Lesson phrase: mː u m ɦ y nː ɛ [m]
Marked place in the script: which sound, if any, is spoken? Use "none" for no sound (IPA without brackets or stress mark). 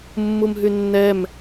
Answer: m